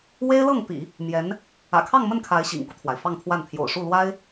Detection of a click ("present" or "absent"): absent